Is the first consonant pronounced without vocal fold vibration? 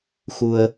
yes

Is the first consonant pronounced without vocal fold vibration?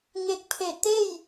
no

